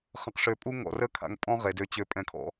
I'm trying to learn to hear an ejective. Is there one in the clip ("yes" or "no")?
yes